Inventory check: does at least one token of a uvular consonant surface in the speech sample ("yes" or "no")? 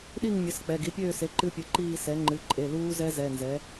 no